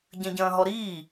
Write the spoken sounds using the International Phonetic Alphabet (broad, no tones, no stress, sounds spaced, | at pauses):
ɟ ɐ̃ ɟ ɐ̃ː ɦ ɔ ɾ iː